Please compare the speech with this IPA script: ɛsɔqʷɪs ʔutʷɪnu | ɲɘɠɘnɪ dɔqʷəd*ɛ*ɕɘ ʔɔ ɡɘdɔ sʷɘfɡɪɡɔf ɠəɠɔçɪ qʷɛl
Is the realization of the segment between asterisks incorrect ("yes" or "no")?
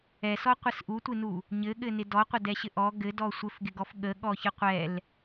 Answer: no